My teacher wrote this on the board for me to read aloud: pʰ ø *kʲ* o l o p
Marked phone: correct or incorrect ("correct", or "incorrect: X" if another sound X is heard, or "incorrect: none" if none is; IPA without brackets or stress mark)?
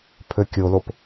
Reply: correct